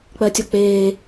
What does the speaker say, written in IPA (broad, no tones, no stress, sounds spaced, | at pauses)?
k͡p ɜ tʲ ɔ k͡p eː